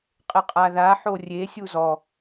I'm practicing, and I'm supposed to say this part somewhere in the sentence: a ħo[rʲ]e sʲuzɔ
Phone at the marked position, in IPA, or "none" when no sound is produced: rʲ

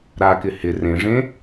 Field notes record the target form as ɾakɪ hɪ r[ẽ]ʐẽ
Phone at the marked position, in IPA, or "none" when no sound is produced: ẽ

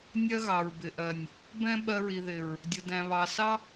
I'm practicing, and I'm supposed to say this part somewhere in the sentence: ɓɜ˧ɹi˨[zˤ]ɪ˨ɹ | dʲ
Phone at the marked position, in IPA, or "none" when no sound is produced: ð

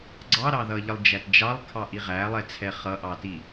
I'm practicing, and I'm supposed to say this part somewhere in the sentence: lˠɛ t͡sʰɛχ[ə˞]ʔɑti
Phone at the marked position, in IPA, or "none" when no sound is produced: ʌ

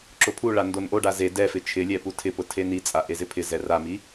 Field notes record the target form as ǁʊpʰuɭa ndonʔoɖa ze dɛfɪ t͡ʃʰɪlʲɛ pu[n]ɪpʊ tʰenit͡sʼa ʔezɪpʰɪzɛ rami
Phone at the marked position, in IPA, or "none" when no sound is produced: tʰ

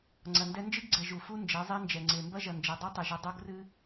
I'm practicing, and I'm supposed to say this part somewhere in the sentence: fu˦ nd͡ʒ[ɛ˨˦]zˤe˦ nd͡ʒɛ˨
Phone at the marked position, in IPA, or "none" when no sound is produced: ɛ˨˦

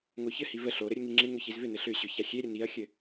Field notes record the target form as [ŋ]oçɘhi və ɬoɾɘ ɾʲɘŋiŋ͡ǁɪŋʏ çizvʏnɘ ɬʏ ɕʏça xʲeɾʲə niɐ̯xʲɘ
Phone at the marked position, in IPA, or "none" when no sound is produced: ŋ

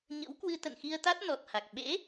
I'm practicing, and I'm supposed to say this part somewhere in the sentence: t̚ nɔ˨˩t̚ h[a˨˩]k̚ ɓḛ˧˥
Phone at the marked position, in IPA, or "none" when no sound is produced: a˨˩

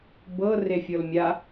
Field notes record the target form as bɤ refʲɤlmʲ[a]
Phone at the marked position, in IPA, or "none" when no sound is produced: a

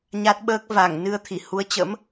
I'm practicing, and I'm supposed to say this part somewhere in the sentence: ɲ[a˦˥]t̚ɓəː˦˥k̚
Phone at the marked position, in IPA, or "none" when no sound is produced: a˦˥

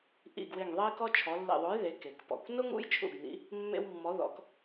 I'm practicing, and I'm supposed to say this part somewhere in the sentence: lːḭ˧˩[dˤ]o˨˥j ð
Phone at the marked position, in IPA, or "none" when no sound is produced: ðˤ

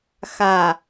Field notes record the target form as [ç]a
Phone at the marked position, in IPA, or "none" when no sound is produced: x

